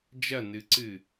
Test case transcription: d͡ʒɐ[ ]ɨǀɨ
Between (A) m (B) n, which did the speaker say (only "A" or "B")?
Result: B